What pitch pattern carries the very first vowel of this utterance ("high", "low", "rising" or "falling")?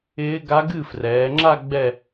rising